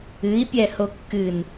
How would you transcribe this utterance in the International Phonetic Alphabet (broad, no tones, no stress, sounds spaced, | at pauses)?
ɨ i̯ pʲ ɛ h o kː ɨ n